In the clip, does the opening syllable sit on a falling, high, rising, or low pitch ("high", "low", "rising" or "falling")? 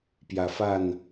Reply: low